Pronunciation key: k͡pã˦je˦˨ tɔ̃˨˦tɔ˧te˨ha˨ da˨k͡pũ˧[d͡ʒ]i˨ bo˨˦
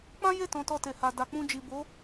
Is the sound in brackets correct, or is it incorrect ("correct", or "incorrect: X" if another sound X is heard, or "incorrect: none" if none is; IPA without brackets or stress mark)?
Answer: correct